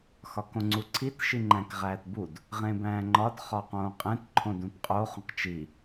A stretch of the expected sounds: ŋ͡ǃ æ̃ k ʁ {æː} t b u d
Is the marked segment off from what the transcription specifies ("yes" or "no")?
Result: no